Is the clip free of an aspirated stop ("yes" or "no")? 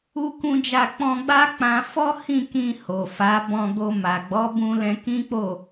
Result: yes